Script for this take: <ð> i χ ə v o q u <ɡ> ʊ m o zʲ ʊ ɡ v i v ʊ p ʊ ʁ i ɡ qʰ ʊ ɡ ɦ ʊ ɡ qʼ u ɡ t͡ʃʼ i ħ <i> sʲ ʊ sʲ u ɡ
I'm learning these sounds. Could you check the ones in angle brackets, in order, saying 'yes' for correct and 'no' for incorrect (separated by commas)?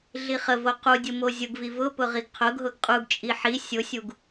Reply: no, no, yes